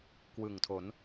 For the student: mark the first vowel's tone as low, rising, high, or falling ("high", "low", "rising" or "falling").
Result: low